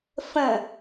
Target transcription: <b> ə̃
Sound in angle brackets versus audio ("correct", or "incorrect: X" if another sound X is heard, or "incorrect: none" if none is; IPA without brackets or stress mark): incorrect: f